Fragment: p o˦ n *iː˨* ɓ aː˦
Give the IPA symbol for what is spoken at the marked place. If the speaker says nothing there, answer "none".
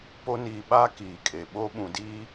iː˨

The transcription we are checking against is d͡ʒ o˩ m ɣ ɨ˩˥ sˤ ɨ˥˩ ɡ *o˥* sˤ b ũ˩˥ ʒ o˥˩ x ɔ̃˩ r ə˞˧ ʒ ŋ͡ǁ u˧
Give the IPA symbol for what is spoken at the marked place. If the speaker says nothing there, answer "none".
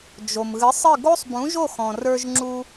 o˥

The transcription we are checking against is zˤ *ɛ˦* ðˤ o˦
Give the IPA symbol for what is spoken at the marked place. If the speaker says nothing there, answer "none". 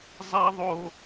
ɛ˦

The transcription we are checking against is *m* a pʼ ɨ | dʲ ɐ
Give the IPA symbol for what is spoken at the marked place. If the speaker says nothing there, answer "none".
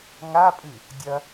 ŋ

